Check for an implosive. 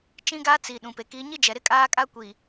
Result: present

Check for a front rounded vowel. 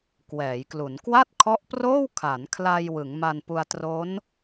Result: absent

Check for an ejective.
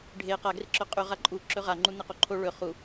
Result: present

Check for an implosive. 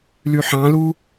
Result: absent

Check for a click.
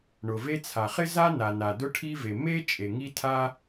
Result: absent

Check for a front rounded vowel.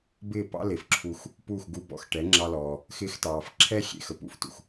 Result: absent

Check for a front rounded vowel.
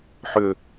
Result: present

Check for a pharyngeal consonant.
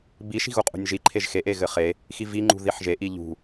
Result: present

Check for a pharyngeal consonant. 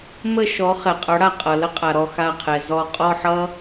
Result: present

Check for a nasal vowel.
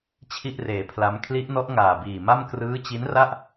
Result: absent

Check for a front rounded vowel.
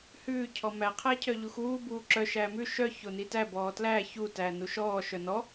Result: present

